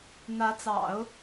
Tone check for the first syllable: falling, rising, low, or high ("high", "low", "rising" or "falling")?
rising